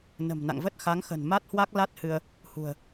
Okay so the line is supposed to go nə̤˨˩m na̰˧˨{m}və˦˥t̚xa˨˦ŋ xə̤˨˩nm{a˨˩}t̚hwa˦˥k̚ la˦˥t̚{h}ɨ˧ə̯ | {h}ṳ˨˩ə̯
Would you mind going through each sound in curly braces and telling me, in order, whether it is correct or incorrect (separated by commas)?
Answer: incorrect, incorrect, correct, correct